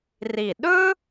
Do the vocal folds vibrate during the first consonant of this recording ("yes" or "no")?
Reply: yes